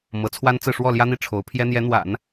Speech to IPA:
mɤ˧˥t͡sʰwa˥nt͡sɹ̩˥˧ ʂwɔ˥˩ljä˥n̪i˥˩ ʈ͡ʂʰo˧˥ʊ̯pʰjɛ˥ n̪jɛ˧˥n̪wa̰˨˩˦n

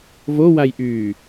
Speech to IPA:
vowajʔyː

